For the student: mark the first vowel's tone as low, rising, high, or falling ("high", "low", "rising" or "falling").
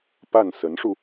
falling